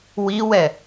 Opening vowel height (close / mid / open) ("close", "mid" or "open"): close